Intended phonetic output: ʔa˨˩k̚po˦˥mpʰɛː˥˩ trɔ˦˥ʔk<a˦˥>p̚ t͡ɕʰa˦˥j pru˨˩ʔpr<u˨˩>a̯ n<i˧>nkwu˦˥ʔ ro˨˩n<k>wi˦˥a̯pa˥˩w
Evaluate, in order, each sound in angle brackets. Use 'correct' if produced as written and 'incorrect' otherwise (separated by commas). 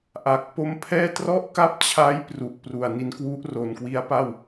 correct, correct, correct, correct